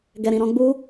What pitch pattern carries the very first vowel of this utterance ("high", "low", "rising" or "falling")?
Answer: low